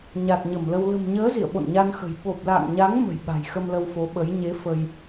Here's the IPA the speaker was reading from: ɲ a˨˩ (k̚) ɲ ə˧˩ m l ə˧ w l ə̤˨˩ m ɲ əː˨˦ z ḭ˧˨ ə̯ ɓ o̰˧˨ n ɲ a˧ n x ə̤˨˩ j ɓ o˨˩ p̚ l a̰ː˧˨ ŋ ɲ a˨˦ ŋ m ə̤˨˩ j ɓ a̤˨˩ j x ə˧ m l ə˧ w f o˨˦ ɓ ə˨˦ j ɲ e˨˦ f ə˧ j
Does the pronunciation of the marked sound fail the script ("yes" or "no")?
yes